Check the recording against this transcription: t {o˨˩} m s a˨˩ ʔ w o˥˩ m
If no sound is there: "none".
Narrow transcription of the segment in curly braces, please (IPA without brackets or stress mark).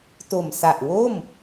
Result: o˨˩